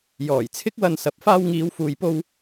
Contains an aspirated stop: yes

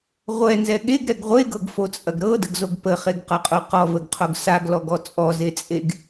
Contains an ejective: yes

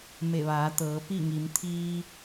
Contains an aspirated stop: yes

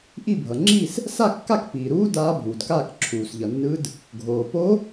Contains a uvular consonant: no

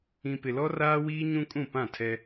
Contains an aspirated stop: yes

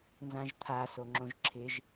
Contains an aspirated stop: yes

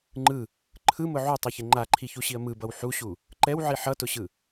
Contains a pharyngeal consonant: yes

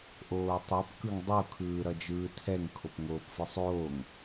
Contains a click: no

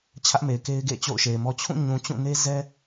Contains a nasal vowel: yes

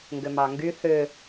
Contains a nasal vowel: no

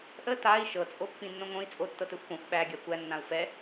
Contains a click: no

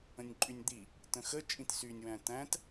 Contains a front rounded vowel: yes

